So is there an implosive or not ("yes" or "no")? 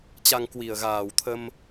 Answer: no